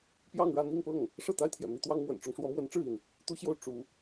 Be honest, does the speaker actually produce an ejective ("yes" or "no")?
no